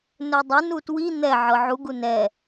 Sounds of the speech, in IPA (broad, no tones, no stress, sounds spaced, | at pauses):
n ɵ dˤ ɵ n u t w i n̪ ɛ ʕ ɤ ʕ u ɡ u n ɛ